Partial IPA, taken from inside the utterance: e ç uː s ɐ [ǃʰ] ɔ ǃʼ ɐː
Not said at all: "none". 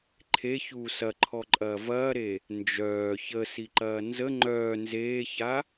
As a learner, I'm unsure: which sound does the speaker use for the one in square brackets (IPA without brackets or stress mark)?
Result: ǃʰ